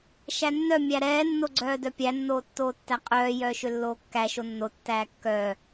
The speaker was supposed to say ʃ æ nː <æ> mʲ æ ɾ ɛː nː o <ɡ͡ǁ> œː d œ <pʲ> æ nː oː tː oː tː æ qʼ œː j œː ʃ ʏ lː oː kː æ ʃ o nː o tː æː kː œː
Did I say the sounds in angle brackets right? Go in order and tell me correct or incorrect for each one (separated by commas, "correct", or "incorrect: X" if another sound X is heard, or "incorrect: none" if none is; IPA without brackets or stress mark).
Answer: incorrect: œ, incorrect: ɡ͡ǀ, correct